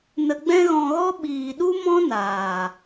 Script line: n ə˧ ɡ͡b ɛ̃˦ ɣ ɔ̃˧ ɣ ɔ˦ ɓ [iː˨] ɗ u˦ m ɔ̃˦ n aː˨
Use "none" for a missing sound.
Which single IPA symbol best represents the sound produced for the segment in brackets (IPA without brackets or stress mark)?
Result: iː˨